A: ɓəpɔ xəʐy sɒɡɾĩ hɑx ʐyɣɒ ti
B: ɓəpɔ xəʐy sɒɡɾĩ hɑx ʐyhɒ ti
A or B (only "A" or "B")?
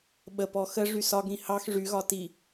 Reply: A